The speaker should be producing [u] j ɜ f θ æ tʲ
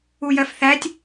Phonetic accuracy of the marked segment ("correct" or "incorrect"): correct